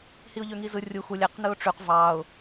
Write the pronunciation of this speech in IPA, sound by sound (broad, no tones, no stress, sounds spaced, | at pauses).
h i ʊ̯ ʎ ø ŋ i z ɯ rʲ u x u lʲ æ q n ɯ ʊ̯ ʈ͡ʂ y q v ɑ ʊ̯